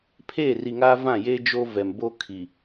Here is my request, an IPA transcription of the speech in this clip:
pʰ eː˦˨ r i˨ ŋ aː˦ v ã˦˨ j e˦ d͡ʒ o˦ v ɛ˨ m b o˦ kʰ i˨

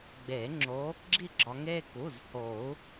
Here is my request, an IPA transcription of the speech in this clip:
ɡ͡b eː˨˩˦ ŋ͡ǁ oː˨˦ | ɡ͡ǁ i˥˧ ɡ͡ǁ ɒ˨˦ ŋ eː˥˧ k u˩˧˩ z h oː˨˩˦ u̯

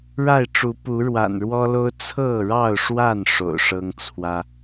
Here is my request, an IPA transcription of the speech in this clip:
ɻ a˥˨ ɪ̯ ʈ͡ʂ u˨˦ p u˨˦ ɻ w a̰˨˩ n ɻ w ɔ˦ l o˦ ʊ̯ t͡sʰ ɤ˥˨ ɻ ɑ˥˨ ʊ̯ ʂ w a˥˨ n ʂ o̰˨˩ ʊ̯ ʂ ɤ˦ ŋ t͡sʰ w ä˦

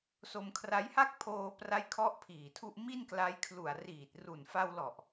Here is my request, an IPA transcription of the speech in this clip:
s o˧ m kʰ r a˦˥ j h a˥˩ k̚ pʰ oː˧ p r a˥˩ j kʰ ɔ˥˩ ʔ pʰ iː˨˩ tʰ u˥˩ ʔ m i˥˩ n k l a˦˥ j kʰ l u˨˩ a̯ r iː˨˩ t̚ r u˨˩ n f a˧ w l ɔ˨˩ ʔ

